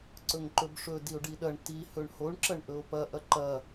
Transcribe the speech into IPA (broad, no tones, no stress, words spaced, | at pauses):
ǀɵŋǃɵbʂɵ dio̯ɖiɗɐɳ ti hɵɳhoɳ ǁɐɳʔɵo̯pɐ ʔɐǃɐ